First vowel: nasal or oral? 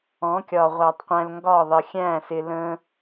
nasal